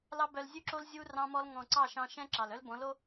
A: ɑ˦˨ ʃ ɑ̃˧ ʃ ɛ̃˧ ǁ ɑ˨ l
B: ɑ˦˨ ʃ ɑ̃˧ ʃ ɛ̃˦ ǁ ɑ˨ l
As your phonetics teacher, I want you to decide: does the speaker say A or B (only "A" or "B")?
B